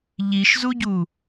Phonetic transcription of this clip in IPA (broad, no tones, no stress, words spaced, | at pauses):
ʎiʃzuɟu